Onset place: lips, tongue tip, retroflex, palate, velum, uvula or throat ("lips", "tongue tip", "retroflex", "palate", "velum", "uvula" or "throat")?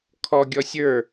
velum